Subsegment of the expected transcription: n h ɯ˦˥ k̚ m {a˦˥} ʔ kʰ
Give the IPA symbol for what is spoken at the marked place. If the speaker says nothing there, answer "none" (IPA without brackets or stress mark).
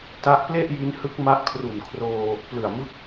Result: a˦˥